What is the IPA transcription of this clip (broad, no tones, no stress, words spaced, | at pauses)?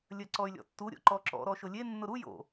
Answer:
lʲɜǀɔy̯lʲɔ̰tːu ɾʲo̰ǃɔǁɔ̰ ɾɔʃʊlʲe nːʊɾu jo̰